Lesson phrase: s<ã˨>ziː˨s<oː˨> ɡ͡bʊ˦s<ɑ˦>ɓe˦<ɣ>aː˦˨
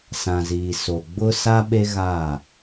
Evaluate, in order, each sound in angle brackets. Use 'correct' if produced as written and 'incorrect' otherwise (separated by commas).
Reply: correct, incorrect, incorrect, correct